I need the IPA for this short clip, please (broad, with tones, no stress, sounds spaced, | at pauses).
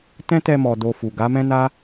t ɛ̃˦ t ɛ˧ m ɔ˨ d o˧ f u˨ ɡ a˨˦ m ɛ̃˦ n a˦